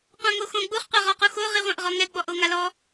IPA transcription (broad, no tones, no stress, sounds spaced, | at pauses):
qʷ ã ŋ o x õ ɡ͡b u χ qʷ a ʁ ɔ q u x o ʁ i ʁʷ ã ʔ ʁ ɔ ŋ ɛ ɡ͡b ɔ ʔ o ŋ a l ɔ